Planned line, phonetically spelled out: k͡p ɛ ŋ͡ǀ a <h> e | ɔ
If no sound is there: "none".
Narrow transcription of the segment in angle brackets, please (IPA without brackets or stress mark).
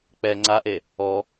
ʔ